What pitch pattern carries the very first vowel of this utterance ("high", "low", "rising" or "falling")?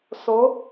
rising